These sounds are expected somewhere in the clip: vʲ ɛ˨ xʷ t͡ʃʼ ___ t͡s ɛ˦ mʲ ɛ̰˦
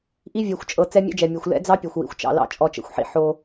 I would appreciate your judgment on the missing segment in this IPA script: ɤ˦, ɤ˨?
ɤ˨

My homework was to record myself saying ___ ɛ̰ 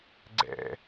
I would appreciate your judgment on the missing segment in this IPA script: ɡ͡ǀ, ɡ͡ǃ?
ɡ͡ǀ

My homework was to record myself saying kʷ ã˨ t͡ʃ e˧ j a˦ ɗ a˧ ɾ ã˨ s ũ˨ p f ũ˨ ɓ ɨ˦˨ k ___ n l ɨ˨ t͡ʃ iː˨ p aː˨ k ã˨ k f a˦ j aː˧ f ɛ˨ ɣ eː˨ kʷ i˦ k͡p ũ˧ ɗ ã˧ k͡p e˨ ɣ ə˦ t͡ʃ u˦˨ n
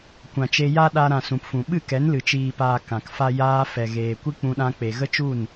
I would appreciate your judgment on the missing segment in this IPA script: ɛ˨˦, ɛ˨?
ɛ˨˦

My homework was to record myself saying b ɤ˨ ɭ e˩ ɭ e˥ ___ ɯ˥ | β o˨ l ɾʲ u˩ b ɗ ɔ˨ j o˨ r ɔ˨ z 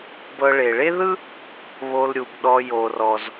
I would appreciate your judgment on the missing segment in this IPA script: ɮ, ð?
ð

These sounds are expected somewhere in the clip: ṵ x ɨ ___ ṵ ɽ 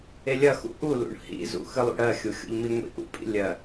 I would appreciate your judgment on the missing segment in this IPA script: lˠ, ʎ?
lˠ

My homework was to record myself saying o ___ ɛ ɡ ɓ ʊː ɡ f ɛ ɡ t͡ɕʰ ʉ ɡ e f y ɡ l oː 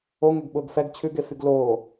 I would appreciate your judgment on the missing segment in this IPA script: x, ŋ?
ŋ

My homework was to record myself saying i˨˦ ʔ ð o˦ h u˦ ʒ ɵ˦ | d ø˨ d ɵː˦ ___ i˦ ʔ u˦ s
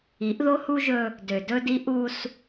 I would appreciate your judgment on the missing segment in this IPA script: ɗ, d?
d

